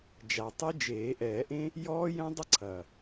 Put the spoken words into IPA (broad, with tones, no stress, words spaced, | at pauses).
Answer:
d͡ʒa˨˩tˤɨ˦˥d͡ʒeː˨˩˦ ʔɛː˨˩˦ʔẽ˦˥ | jɔː˦˥ jɛ̃˦˥dˤɐ˦˥ǀʰɐ˨˩